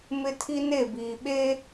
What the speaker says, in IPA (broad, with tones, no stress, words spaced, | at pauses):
mɪ˦tʰi˦ne˦˨ biː˨ ɓeː˦